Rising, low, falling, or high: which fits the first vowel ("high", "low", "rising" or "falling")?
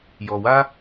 low